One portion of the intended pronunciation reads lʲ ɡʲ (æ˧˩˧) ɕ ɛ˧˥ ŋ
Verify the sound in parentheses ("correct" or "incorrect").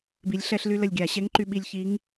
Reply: incorrect